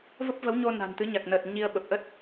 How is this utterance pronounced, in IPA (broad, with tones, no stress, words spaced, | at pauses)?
və˦˥p̚və˨˦wɲo˧ na̤˨˩nt̪ɨ˨˦ɲa˨˩k̚nəː˨˩t̚ ɲi˧ə̯ ɓə˨˩p̚ʔə˦˥t̚